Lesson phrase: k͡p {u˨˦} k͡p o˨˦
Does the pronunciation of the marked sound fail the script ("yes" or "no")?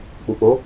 yes